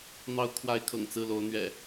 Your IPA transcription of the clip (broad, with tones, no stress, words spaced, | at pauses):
n̪ɑ˨˦ʊ̯kʰwa˨˦ɪ̯kʰɤ̰˨˩ŋ t͡sɹ̩˥˨lo˨˦ʊ̯n̪ɥɛ̰˨˩